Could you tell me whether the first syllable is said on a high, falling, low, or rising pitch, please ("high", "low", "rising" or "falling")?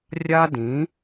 high